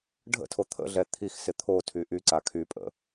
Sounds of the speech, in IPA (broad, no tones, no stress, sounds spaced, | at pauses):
ɖʱ ə̰ tʰ o t̪ʰ ə̰ ɮ ɛ t̪ʰ i x s ɪ t̪ʰ o tʰ y ʔ y ǀ a kʰ y pʼ ə̰